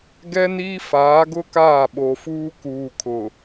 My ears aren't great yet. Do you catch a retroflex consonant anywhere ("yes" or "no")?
no